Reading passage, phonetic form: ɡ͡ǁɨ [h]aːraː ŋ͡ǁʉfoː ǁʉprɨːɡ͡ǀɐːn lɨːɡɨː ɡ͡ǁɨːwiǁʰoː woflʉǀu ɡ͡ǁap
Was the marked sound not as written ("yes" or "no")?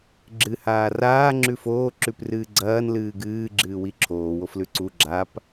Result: no